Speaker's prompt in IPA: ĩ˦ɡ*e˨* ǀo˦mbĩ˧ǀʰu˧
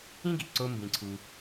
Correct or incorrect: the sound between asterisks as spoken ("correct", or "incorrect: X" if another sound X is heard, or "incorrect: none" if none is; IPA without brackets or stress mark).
incorrect: i˨